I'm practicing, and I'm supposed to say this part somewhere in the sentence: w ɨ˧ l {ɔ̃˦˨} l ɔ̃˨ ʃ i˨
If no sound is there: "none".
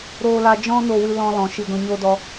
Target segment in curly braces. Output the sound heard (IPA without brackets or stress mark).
ɔ̃˧